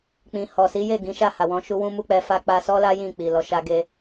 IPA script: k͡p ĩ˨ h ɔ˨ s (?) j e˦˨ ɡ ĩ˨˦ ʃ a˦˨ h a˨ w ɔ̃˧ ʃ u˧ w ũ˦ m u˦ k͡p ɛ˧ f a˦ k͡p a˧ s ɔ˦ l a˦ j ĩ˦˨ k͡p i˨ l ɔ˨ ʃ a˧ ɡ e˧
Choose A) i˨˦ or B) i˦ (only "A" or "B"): A